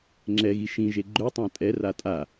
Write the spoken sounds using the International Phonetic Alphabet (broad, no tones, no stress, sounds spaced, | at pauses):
ŋ͡ǁ ɛ ɣ i ʃ ĩ ʒ e ɡ͡ǃ ø tˤ ã tʼ ɛ r a tʼ a